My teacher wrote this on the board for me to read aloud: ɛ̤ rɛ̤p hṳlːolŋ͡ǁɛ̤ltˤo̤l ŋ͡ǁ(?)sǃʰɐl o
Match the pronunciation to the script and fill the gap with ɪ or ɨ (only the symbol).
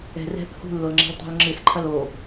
ɨ